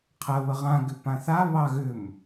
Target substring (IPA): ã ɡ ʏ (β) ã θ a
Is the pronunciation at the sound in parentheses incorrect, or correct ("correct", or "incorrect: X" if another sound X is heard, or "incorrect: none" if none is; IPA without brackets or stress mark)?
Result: incorrect: p